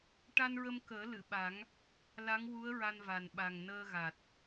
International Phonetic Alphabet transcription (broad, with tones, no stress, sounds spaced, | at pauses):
ʈ a˧ n ɹ ə˧ m k əː˨˩˦ l ɨ˨˩˨ ɓ a˨˩˦ ŋ | l a˧˥ ŋ w u˧˥ ə̯ ɹ a˧ n v a˨˩ n ɓ a˨˩ ŋ n əː˧ ɣ a˨˩ t̚